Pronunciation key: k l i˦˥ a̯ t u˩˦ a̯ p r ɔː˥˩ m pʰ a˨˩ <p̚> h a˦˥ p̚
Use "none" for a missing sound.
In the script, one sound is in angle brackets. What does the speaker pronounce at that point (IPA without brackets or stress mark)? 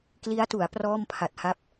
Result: t̚